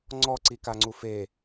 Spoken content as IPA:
ŋ͡ǀ ɔ ǀ i k a ŋ͡ǀ u f e

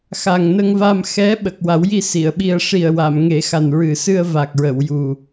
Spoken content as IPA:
x a˨˩ ŋ n ə˧ ŋ v a˧ m x ɛ˧˥ ɓ ə˨˩ k̚ w a˨˩˦ w j i˧ s i˨˩˨ ə̯ ɓ i˧ ə̯ ʂ i˨˩ ə̯ w a˨˩˨ m ŋ e˨˩˦ x a˨˩ n ɹ ɨ˨˩ s ɨ˧ ə̯ v a˨˩ k̚ ɹ ə˨˩˨ w j u˨˩

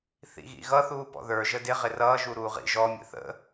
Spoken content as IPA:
θ ḭ ɣ ḭ ɣ ʌ θ uː p ɔ̰ ð ə˞ ʒ ə d ɪ ʁ ɪ r ʌː ʒ u ɾ uː ʁ ḭ ʒ ɔ mʲ ə̰ θ ə̰

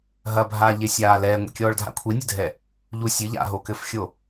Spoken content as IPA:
ɦ ɐ bʱ aː ʎ e sʲ aː l ɛː ŋʷ ḭ kʲ ɔː ɭ dʱ a̰ kʷʰ i nʲ ɨ dʱ ɛ | ʎ u sʲ ɨ ʎ a̰ ɦ o k ɘ f xʲ o

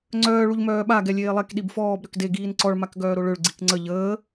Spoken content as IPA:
ŋ͡ǀ œː ɭ u ʎ m œː ɓ a ɡ ɛ lʲ eː lˠ ɛ k ɗ i b f ɔː b ɾ ø k d e ɡ iː n ǀ ɔ ɭ m a k ɡ œː ɾ o ɭ ø ɭ ɡ͡ǀ i k ŋ͡ǀ ə ʎ əː

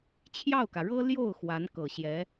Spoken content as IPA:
t͡ɕʰ j ɑ˥˩ ʊ̯ k ä˩ ɻ ɤ˥ l j o˥˩ ʊ̯ x w a˧˥ n k ɤ˨˩ ɕ j ɛ˧˥

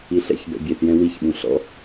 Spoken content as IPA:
i ɬ ɛ̰ ç b ɛ̰ bʲ e θ j ɛ̃ w i ç ɓ ũ ɬ ɔ̰

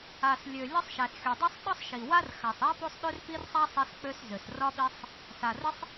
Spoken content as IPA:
a˨ s lʲ ø˨ lʲ ɒ˥ sˤ ʃ æ˨ s xʲ o˨ dˤ i˥ sˤ ɗ ɒ˥ sˤ ʃ i˨ w a˥ r x a˨ sˤ æ˥ p o˥ sˤ ɗ ø˥ r p i˥ r sˤ a˥ sˤ i˥ s k͡p ø˥ s z ø˨ s r ɒ˥ ɓ i˥ sˤ | s a˨ r ə˥ sˤ

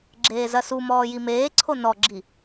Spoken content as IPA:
ɡ͡ǁ eː z ɐ s u m ɔː j i m eː ǀʰ o n ɔ ɡ͡ǁ i

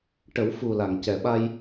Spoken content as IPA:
ʈ ə˨˩˦ w f u˨˩ l a˨˩˨ ŋ c ɛ˨˩˨ ɓ a˧ j

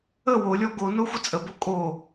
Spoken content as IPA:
ə w o lʲ ɔ ɡ o n o xʷ ə t͡sʼ ə b o kʼ o

